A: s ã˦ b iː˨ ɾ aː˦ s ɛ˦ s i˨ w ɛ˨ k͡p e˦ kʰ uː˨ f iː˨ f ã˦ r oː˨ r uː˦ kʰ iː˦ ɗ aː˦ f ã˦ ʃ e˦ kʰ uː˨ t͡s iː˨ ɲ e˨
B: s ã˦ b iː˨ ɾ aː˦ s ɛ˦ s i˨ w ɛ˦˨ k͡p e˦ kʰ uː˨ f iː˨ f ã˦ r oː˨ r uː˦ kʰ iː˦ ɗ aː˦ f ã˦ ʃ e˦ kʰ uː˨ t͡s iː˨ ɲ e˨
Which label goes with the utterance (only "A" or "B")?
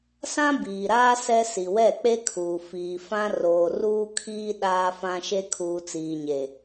B